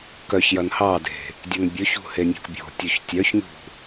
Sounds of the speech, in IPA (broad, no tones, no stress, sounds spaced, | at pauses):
k œ ç j ɐ n h ɑ d e̤ | dʲ ɐ n bʲ ɵ ç ṳ h e nʲ o̤ k bʲ o̤ tʲ o ç tʲ œ ç ɲ ṳ